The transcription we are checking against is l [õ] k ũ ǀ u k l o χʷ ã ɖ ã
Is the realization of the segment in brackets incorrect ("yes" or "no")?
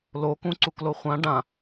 yes